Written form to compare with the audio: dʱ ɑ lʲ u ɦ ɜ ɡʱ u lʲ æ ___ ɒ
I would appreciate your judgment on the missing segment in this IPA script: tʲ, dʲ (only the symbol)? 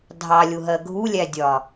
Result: dʲ